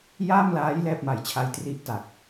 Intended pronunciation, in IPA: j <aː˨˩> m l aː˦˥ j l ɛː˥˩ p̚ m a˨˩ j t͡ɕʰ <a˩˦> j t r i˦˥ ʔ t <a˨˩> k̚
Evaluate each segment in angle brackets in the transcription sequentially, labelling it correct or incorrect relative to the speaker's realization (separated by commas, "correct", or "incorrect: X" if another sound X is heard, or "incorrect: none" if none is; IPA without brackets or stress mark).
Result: incorrect: aː˥˩, incorrect: a˧, correct